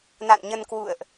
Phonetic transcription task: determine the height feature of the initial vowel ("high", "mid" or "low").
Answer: low